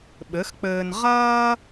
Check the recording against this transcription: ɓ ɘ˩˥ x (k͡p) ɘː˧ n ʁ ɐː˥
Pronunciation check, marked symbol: correct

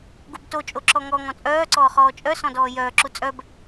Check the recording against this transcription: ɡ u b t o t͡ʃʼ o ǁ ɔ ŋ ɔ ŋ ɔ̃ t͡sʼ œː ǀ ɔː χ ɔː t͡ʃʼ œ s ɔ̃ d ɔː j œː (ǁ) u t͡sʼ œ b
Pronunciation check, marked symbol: correct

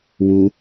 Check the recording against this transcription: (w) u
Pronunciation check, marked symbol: correct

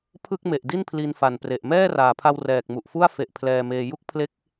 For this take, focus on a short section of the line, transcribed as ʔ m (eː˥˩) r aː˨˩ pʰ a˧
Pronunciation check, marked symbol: incorrect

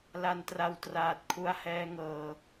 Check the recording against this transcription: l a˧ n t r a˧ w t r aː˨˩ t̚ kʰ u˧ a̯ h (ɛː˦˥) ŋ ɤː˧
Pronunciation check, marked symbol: correct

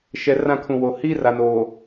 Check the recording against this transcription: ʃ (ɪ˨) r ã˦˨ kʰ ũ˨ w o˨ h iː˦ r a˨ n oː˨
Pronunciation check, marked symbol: incorrect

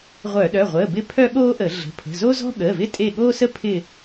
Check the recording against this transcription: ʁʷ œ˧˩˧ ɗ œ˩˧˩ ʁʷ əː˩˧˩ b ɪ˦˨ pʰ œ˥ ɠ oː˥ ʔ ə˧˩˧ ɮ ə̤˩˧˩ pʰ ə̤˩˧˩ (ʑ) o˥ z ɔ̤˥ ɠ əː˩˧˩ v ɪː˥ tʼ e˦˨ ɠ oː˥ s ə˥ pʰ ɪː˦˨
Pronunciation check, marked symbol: incorrect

